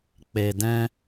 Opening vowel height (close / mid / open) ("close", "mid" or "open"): mid